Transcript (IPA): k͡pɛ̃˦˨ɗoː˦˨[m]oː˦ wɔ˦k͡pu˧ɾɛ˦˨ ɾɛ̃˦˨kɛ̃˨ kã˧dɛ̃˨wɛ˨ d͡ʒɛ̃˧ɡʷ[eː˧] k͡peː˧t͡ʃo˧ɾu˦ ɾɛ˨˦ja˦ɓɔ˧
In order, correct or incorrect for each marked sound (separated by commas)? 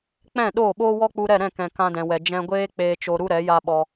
incorrect, incorrect